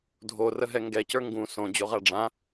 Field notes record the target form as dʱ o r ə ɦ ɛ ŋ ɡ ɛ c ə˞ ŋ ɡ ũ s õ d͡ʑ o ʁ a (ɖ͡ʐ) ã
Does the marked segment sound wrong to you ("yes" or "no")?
no